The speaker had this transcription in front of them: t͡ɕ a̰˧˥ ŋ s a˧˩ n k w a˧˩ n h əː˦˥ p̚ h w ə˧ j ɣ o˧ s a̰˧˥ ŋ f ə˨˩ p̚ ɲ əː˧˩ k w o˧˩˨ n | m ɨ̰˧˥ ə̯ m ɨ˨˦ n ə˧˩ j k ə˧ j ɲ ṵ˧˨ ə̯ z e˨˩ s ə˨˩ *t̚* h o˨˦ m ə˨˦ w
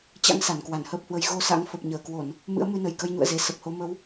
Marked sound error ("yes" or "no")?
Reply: yes